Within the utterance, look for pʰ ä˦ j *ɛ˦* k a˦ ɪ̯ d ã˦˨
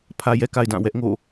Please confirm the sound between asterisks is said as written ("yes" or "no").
yes